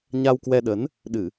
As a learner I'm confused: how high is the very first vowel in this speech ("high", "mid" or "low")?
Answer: low